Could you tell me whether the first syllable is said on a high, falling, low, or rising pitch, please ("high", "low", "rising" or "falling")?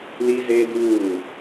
high